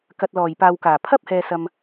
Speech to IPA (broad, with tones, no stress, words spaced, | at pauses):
kɐ˨t̚lɔː˨˩jpaː˨wkaː˨˩ pʰɐ˥p̚ hɛː˧sɐ˧m